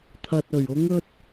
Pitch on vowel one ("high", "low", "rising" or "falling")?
low